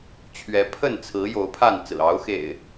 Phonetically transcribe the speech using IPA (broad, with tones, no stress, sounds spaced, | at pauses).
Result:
t͡ɕʰ ɥ ɛ˨˦ pʰ ə˥˨ n t͡sʰ ɹ̩˨˦ j o˨˦ ʊ̯ pʰ a˥˨ n t͡s ɹ̩˨˩ ɑ˨˦ ʊ̯ x ḛ˨˩ ɪ̯